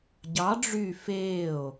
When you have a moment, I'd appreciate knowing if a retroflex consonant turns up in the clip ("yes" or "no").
yes